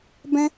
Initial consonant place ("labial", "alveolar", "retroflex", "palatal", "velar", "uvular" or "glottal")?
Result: labial